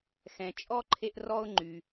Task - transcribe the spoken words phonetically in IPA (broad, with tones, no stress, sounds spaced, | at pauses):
x ɛ̃˩ t͡ʃʼ ɔ˥ ǃʰ e˥ ʔ r ɔ˥ ʊ̯ ŋ͡ǃ y˩